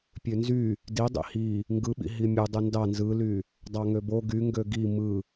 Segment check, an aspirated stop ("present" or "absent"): absent